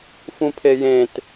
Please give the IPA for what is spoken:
f ũ pʰ e j ẽ t

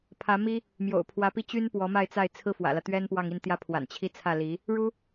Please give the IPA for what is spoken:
pʰ ä˧˥ m i˥ | m j o̰˨˩ ʊ̯ pʰ w ä˧˥ p i˥˩ t͡ɕ y˥ n p w ɔ˧˥ m a˥˧ ɪ̯ t͡s a˥˩ ɪ̯ t͡sʰ ɹ̩˥ f w ä̰˨˩ l ä˦ t̪ ɥ ɛ˥ n p w ɑ˥˧ ŋ i˥˩ n t̪ j ä˥ pʰ w a̰˨˩ n t͡ɕʰ i˥ t͡sʰ ä˥˩ l i˧˥ | ɻ u˥

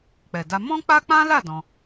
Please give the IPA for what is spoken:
k͡p ɛ˨ d a˧ m ɔ̃˦ k͡p a˦ k͡p ã˦ l a˦˨ d ɔ̃˧

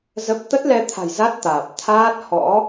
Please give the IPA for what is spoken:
z ə˦˥ p̚ t̪ ə˦˥ t̚ l ɛ˧ t̪ʰ a̤˨˩ j z a˦˥ t̚ t̪ aː˨˩ p̚ t̪ʰ aː˦˥ t̚ h ɔ̰˧˥

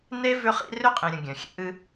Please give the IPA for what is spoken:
n e˦ v ʏ˦ χ ḭ˦ r ʏ˦ qʼ ĩ˨ ɾʲ ə̃˨ ɡʲ œ̃˨ xʲ ɛ̰˦ ʔ ɨ˦

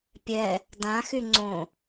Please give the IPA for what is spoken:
pʲ ɛ | d ã x y ŋ͡ǀ õ

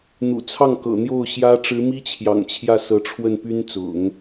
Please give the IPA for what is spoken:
n̪ ṵ˨˩ t͡sʰ ɑ˥˩ ŋ k ɤ̰˨˩ n̪ j o˥˩ ʊ̯ ɕ j ä˥ ʈ͡ʂ ɻ̩˧˥ m i˥ t͡ɕʰ j ɑ̰˨˩ ŋ t͡ɕʰ j ä˥˩ s ɤ˧˥ ʈ͡ʂʰ w ə˥˩ n p y˥ n t͡s ʊ̰˨˩˦ ŋ

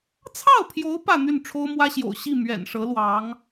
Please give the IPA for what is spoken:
t͡sʰ ɑ˥˩ ʊ̯ pʰ j o˧˥ ʊ̯ p ä˥˧ n̪ y˥˩ n ʈ͡ʂʰ o˥ ʊ̯ m w ä˥ ɕ j o̰˨˩ ʊ̯ ɕ i˥˩ m ɥ ɛ̰˨˩ n ʂ ɤ˧˥ l w ɑ˧˥ ŋ

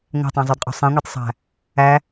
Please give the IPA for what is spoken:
ŋʷ æ̤ tˤ æ̃ zˤ o d qʼ o̤ sˤ ɛ̃ ŋʷ e tˤ sˤ æ̤ | æ

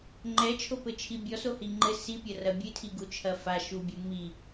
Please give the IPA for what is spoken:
ŋ͡ǃ ɛ t͡ʃʰ o p ɘ t͡ʃʰ i bʲ ɔ s o h i ŋ͡ǃ ɘ s i pʲ ɐ r ɐ bʲ ɨ tʰ i ɡ u t͡ʃʰ ɐ f a ʃ u bʲ u m i

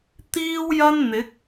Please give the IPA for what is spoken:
t̪ iː˥ w j ɐ˥ n n̪ ɪ˨˥ k̚

